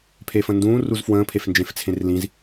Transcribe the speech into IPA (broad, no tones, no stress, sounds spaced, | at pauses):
pʰ e f ə̃ n d ũː r u z f w ə̃ː pʰ e f n d͡ʒ ẽ f t͡sʰ ẽ r l ĩ z